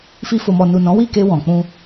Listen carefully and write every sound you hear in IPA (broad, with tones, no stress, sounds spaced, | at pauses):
f i˧ f o˨ m ɔ˨ n u˨ n ɔ̃˨˦ w i˦˨ k e˧ w ɔ̃˨ k͡p ũ˧